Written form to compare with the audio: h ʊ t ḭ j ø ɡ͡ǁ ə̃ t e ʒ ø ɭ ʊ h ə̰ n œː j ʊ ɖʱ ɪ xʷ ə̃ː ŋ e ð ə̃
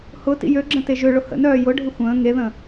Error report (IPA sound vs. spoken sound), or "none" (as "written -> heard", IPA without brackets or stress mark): none